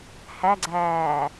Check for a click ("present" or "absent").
present